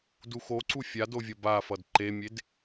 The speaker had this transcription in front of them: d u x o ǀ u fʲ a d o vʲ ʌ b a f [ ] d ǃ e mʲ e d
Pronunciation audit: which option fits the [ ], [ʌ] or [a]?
ʌ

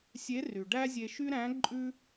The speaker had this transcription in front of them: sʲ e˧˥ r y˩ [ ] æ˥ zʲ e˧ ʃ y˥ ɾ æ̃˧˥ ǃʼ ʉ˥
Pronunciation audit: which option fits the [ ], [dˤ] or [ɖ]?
ɖ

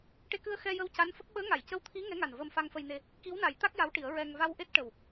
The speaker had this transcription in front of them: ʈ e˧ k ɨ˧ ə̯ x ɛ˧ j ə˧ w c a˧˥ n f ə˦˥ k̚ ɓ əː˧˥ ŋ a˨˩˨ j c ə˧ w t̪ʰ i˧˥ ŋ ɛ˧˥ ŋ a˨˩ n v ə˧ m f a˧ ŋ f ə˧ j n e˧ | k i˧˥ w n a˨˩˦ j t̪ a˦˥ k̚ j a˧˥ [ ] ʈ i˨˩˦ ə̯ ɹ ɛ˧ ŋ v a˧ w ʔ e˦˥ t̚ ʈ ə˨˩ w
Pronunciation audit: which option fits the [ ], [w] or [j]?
w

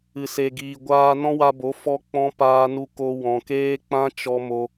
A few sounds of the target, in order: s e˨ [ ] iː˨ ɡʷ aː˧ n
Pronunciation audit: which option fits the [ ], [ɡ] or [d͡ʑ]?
ɡ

